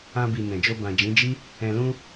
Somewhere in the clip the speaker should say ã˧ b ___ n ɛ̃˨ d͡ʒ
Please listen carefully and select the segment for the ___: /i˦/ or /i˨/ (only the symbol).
i˨